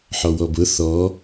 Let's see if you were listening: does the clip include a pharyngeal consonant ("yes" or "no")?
yes